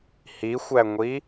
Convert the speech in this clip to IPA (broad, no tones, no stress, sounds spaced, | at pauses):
h i xʷ æ ŋʷ i